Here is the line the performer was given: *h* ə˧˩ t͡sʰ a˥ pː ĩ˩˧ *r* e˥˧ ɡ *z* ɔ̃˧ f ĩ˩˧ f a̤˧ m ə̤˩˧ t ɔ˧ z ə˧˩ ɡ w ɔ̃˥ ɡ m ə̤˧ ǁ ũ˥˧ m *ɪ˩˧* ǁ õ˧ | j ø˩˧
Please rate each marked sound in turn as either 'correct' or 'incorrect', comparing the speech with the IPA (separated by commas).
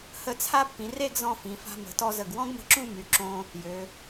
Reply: correct, correct, correct, incorrect